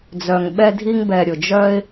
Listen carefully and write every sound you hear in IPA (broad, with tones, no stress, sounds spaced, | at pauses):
d͡z œ˨ ŋ ɓ ɛ˧ dʱ i˧ ŋ b ɛ˨ ɾʲ ʊ˨ d͡ʒ œ˦ ɪ̯